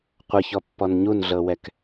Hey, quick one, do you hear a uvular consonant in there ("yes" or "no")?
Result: yes